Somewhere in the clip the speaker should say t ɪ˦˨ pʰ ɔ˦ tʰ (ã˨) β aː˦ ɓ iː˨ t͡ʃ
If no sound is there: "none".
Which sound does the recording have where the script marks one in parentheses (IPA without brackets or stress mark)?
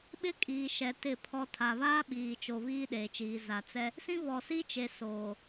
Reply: a˨